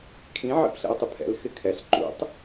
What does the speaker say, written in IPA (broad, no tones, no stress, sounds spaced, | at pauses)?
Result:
kʰ ĩ ʕ ḭ p ɬ ɛ̰ ʊ̯ tˤ ɪ pʰ ɛ̰ l x ɪ kʰ ɛ ɬ ǃ ṵ tˤ